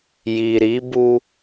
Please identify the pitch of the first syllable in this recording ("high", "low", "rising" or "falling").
low